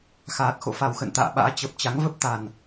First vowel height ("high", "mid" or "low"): low